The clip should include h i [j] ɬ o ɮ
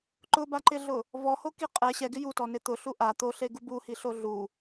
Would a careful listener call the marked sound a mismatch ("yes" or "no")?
yes